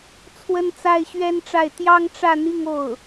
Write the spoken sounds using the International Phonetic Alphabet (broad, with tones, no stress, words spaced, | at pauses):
t͡sʰwə˥nt͡sa˥ɪ̯ɕɥɛ˥nʈ͡ʂa˥˩ɪ̯ t̪jɑ˥ŋʈ͡ʂä˥˧n̪i˥˧ŋ o˥˩ʊ̯